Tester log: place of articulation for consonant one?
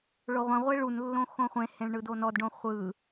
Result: retroflex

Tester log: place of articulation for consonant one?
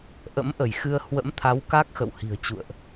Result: glottal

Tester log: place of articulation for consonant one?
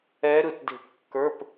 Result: alveolar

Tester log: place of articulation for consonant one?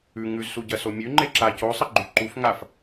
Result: velar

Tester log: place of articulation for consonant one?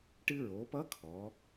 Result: retroflex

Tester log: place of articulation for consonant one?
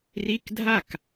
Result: alveolar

